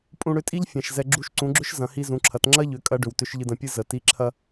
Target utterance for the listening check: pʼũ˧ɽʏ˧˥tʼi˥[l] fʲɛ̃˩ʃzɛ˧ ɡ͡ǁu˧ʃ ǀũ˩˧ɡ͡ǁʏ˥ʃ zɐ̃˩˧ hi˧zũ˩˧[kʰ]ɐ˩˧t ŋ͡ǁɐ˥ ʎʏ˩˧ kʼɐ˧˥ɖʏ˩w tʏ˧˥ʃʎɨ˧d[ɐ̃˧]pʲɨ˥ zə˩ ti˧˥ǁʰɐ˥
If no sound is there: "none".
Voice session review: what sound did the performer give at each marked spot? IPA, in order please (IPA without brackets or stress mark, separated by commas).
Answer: ʎ, ǁʰ, ɐ̃˧